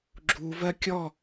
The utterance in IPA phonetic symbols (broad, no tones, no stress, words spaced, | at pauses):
ɡ͡ǁu vɜkʲɔ